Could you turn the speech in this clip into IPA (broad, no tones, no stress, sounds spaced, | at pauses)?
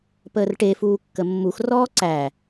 p əː r ʈ e f uː kː ə mː u x r ɔː ǀ æ